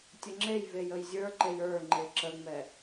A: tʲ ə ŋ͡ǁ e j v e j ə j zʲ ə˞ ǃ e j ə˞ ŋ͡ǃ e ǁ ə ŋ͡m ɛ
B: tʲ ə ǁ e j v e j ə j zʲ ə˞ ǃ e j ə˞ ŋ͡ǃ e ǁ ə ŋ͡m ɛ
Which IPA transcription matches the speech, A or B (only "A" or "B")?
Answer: A